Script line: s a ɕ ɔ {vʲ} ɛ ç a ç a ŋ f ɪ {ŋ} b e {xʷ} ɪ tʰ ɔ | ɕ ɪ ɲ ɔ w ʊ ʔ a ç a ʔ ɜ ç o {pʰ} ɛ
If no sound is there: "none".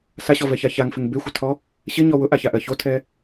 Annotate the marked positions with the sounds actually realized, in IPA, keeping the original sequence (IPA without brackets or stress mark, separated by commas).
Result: v, ŋ, xʷ, tʰ